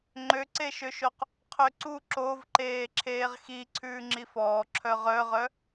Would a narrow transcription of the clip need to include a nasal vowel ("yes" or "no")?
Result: no